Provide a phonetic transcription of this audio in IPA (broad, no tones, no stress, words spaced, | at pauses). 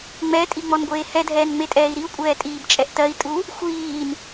ŋ͡mɛtʼiŋ͡mɔnɡʷeː hɛdʱɛːnŋ͡metʼɛːi̯ ɾiu̯kʷʼɛːtʼiːbt͡ʃʼɛʔ tɜi̯tʼu | xʷiːn